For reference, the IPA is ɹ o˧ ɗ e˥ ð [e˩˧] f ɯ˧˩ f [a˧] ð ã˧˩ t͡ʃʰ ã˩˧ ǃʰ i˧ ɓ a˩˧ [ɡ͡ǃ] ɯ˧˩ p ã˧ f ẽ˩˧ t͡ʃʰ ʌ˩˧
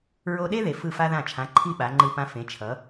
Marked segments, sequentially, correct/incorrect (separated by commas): correct, correct, incorrect